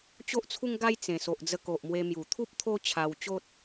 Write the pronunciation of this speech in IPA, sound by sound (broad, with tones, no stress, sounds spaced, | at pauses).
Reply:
t͡ɕ o˦ ʔ t͡sʰ u˦ ŋ ɡ a˦ j t͡s ẽ˨˩ s o˨ ʔ d͡z ə˧ k o˨ ʔ m w e˧ m j u˨˩ t̪ʰ u˦ p̚ t̪ʰ o˦ t͡ɕʰ a˧ w t͡ɕ o˦ t̚